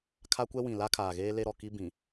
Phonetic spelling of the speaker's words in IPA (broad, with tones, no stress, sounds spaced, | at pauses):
kʰ a˦ kʷ ɛ˦ w ĩ˨ l a˦ kʰ aː˨ ɣ eː˦ l e˦ ɾ ɔ˨ k i˦ b ĩ˨